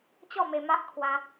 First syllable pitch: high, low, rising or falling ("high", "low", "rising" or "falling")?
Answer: falling